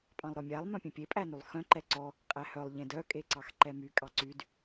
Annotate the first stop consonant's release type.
ejective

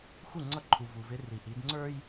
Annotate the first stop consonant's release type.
click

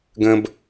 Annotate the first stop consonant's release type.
plain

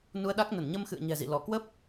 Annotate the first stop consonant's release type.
implosive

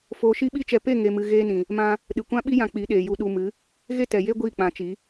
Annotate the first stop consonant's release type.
implosive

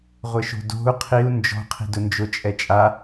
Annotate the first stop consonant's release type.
plain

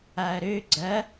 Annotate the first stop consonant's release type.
click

